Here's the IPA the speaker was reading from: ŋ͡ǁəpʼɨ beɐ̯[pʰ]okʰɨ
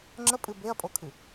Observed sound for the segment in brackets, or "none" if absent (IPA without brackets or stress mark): pʼ